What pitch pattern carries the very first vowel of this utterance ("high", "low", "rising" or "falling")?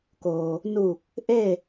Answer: low